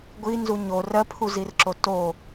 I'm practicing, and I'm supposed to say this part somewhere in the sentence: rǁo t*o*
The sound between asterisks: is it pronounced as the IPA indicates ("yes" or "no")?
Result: yes